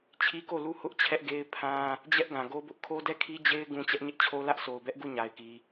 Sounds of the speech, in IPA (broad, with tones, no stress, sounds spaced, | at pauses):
t͡ɕʰ i˦ k o˦˨ l u˦˨ h ʊ˦ ʔ t͡ɕʰ ɛ˦ ʔ ɡ e˦ ɪ̯ pʰ ã˦ | d͡ʑ ɛ˦ ʔ ɡ ã˨ ɡ o˦ b ʊ˦ ʔ kʰ o˦ d ɛ˦˨ kʰ i˦ d͡ʑ e˦ ɪ̯ ɡ ũ˦ t͡ɕ ɛ˦ ʔ ɲ ɪ˦ ʔ t͡ɕʰ o˦ l ä˦ ʔ sʰ o˨ ʊ̯ b ɛ˦ ʔ ɡ u˦˨ ɲ a˨ ɪ̯ k i˨